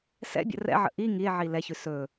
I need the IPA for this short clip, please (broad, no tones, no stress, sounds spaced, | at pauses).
s ɛ̰ bʲ ə̰ r ɛ̰ ʕ ə̰ ʔ i ŋ i e̯ ʕ i l ɛ ç ʉ s ɵ